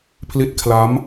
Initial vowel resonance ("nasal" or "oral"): oral